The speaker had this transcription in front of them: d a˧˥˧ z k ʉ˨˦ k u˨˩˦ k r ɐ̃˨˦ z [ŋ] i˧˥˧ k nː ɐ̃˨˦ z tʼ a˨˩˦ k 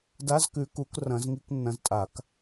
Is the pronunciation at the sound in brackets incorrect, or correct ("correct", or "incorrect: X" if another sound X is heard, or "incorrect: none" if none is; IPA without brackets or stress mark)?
correct